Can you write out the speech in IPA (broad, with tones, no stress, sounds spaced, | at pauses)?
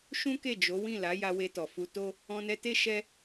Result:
ʃ ũ˦ k e˦˨ d͡ʒ o˨˦ w ĩ˦˨ l a˨˦ j a˧ w e˧ t ɔ˨ f u˧ t o˦ | ɔ̃˧ n ɛ˧ t e˦ ʃ ɛ˦